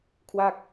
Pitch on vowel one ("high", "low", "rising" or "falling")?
falling